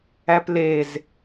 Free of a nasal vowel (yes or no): yes